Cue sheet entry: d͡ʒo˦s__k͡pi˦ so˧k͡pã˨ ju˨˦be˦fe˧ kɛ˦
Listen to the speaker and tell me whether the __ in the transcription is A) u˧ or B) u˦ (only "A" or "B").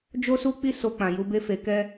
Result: B